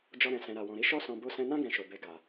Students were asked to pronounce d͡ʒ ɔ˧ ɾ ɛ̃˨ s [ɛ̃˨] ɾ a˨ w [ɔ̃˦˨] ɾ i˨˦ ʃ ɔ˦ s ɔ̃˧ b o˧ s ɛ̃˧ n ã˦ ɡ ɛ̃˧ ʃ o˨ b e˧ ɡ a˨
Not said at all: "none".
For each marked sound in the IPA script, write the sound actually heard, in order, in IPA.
ɛ̃˨, ɔ̃˨

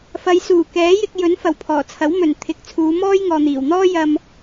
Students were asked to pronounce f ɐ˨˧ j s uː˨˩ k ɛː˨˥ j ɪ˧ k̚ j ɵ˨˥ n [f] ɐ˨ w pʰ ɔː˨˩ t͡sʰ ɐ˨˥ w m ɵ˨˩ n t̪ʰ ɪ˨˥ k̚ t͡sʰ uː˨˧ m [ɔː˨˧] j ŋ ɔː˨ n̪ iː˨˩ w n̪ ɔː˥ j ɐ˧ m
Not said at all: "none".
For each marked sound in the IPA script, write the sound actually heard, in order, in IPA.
f, ɔː˥

